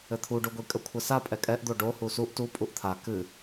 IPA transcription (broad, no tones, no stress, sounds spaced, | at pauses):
ɘ t̪ʰ u ɖ u ɡʷ i kʼ ə kʷʰ ə s a pʼ ɛ kʼ ɛ ʔ d̪ o ɖ o h u s u ʔ t u pʼ u ʔ t̪ʰ a k ɨ